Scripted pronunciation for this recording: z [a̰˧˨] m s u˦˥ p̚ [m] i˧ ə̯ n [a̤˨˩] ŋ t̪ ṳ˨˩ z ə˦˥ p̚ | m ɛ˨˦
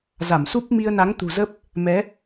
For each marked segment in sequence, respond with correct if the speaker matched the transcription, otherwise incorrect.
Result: incorrect, correct, incorrect

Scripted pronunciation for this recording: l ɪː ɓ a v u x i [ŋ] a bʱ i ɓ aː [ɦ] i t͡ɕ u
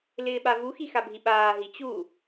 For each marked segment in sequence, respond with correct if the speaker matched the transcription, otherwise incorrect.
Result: incorrect, correct

